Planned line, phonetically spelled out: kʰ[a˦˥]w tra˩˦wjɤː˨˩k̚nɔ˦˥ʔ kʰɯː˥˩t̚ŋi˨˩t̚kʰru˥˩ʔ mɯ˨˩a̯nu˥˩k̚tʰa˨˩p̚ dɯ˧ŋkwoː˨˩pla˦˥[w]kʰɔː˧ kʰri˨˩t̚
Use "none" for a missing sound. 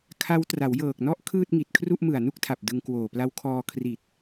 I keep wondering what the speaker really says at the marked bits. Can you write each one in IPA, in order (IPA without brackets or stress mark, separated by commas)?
a˦˥, w